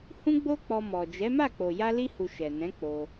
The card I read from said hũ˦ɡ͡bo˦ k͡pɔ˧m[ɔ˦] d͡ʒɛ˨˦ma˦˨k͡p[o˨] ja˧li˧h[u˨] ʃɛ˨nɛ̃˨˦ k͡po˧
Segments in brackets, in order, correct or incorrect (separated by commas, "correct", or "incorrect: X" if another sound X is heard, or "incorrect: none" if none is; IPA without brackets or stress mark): incorrect: ɔ˨, correct, correct